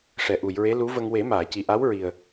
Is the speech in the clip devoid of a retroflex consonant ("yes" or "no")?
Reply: no